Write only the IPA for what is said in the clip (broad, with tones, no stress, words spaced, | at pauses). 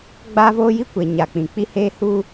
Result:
ɡ͡baː˦voː˦ji˦ kʷe˨ ɲa˨k͡pĩ˨k͡pi˦ heː˦huː˦